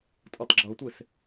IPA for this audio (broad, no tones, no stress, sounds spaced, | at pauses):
tʼ ɤ tˤ ɡ͡ǁ ɤ tʷ e s